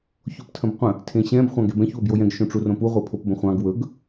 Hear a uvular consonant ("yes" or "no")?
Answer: yes